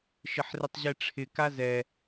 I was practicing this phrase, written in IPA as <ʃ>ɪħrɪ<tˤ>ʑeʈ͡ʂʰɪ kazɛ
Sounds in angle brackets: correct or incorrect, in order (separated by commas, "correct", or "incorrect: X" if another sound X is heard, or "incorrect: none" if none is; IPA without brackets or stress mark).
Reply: correct, correct